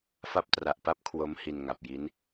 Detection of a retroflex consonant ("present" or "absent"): absent